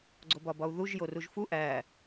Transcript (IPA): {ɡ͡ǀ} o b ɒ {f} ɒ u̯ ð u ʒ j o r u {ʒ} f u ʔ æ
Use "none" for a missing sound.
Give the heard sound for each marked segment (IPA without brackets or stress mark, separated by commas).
ɡ͡ǀ, b, ʒ